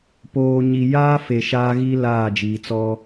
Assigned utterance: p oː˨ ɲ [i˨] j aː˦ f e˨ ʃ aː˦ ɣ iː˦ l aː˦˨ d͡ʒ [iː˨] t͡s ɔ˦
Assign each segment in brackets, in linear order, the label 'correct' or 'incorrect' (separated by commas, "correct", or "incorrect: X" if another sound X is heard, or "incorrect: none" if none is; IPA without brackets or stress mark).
correct, correct